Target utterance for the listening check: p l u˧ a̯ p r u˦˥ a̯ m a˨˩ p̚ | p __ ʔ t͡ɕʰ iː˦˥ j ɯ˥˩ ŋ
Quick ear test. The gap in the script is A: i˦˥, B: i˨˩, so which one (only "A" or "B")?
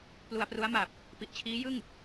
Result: B